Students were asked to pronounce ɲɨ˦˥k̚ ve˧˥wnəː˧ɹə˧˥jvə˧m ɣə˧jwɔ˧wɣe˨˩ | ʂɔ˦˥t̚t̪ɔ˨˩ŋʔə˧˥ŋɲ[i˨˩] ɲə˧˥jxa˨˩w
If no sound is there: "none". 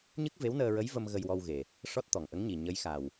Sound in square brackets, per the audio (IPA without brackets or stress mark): i˨˩